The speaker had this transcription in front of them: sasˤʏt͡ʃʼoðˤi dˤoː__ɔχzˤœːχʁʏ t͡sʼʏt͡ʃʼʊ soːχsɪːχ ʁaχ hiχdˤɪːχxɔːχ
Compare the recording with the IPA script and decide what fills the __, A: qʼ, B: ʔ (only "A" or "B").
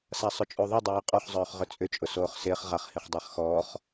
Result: A